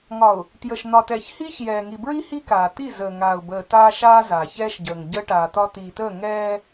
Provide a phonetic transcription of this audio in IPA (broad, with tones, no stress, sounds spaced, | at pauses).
ŋ ɒ˨ ʊ̯ | t j ə˨ ʃ n̪ ɒ˨ t ɛː˨ ç h iː˦ ç j ɛː˨ ŋ i˨ b ɹ i˦ h i˦ k aː˨ t̪ i˦˨ z əː˨ ŋ aː˨ ʊ̯ b əː˨ t aː˦ ʃ aː˦ z aː˨ ç ɛː˦ ʃ ɟ əː˨ ŋ ɟ əː˦ ʈ aː˨ t̪ ɒ˦ t̪ iː˨ t əː˦˨ ŋ ɛː˦